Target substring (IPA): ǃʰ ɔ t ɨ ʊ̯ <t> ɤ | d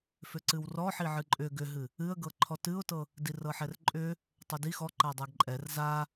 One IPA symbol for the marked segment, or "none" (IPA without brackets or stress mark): t